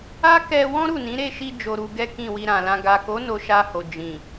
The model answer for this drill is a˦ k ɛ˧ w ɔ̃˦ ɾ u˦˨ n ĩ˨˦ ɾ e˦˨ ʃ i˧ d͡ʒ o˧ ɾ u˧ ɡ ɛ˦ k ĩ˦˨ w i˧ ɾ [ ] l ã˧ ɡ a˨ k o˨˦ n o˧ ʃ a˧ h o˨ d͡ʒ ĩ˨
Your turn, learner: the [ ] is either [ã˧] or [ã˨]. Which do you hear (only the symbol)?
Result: ã˨